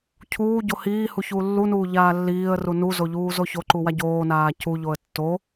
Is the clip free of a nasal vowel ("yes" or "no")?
yes